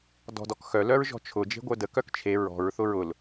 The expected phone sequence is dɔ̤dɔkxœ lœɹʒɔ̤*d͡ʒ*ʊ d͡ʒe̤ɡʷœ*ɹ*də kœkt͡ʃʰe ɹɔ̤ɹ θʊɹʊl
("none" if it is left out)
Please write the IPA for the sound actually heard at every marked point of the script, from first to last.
t͡ʃʰ, none

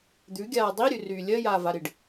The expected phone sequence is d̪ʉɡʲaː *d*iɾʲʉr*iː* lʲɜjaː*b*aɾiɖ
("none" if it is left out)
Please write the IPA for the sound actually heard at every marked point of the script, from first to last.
dˤ, yː, v

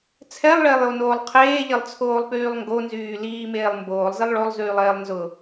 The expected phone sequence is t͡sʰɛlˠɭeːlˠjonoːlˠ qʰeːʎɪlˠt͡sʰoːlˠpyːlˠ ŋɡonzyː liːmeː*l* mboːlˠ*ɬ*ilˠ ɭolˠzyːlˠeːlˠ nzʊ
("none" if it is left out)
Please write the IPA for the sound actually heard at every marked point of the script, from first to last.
lˠ, z

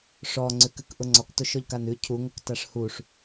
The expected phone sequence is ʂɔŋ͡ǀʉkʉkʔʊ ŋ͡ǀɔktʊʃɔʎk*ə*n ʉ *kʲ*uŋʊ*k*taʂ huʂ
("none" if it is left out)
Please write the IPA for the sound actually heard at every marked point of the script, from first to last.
a, cʰ, k

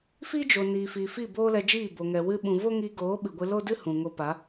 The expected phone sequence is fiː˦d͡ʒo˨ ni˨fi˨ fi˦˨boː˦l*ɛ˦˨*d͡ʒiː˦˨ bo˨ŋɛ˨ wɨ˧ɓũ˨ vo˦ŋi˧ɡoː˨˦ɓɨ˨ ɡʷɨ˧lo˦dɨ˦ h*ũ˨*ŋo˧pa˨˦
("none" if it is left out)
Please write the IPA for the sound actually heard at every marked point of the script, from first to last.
ɛ˧, ũ˨

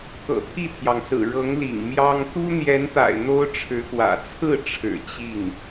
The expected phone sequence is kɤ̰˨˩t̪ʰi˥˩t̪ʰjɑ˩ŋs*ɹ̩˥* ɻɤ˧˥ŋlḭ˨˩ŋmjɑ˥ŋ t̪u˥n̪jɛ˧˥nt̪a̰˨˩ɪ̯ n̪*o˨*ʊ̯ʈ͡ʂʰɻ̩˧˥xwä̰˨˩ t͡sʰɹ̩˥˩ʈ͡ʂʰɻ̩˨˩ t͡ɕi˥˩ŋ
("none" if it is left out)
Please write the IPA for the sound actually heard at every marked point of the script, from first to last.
ɹ̩˨˩, o˥

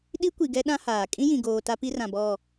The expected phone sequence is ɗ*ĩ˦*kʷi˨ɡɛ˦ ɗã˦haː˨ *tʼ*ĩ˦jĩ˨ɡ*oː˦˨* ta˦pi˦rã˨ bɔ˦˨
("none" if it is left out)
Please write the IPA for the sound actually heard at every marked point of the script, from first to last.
i˦, kʼ, oː˨

